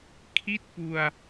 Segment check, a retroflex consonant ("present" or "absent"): absent